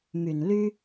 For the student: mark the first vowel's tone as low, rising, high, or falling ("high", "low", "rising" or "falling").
low